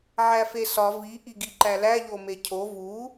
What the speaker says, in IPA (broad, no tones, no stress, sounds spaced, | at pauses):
ʕ æ f e s ɒ v i ʔ i ɡ i ǃ æ l æ ʎ o m e cʰ o v u